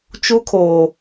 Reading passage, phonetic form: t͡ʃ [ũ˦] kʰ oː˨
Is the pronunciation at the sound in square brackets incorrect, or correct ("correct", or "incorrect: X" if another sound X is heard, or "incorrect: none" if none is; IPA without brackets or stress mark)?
incorrect: u˦